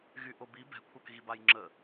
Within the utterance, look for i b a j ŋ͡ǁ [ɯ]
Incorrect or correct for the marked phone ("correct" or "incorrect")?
incorrect